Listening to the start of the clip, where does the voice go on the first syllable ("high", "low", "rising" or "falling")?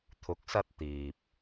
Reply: rising